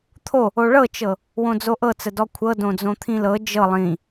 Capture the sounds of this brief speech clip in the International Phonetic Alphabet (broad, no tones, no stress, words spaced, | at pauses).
t̪ʰo | oɭɤt͡ʃɤ | wõd͡zoʔɤt͡sə dɔkʷʰɤ dõd͡zõt̪ʰĩlɤ d͡ʒɤ lˠĩ